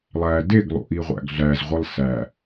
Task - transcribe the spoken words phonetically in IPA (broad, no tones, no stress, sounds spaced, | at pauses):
lˠ æ d e ɡ lˠ ṵ ʔ i ʁʷ æ̰ ɡ ɮ æ z ʁʷ i lˠ s æ